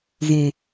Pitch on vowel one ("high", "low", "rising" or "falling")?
low